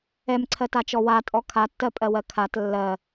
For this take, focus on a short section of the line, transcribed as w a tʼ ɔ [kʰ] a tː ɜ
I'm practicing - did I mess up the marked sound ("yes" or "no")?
no